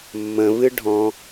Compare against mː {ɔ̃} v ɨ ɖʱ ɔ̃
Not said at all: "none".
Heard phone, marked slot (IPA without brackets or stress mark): ə̃